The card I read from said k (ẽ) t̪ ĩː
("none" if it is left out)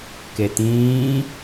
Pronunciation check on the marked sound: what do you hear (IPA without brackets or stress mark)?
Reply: e